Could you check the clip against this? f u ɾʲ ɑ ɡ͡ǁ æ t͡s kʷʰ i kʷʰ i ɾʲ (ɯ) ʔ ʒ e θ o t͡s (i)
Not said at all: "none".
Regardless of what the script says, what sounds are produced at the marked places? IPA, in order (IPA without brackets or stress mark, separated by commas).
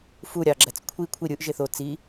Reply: ɯ, i